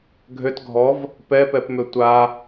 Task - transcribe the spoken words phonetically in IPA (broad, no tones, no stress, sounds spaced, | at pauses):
ɡʱ ø t ɡʱ ɔ v | p ɛ p ɛ p m ø tʷ a